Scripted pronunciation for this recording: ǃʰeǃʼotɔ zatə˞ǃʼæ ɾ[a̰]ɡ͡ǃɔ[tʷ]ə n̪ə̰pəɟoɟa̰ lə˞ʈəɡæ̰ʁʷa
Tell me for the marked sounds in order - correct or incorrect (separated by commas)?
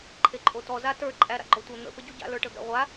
correct, correct